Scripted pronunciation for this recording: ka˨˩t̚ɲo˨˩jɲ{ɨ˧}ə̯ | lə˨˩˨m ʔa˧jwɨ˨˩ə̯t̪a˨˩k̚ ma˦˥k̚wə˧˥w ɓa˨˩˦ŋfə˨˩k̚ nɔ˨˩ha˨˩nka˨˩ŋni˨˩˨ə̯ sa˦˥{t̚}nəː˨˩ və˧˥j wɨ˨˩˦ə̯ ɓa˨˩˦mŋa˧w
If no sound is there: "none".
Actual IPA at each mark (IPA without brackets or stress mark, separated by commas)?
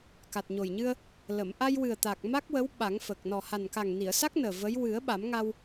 ɨ˧, k̚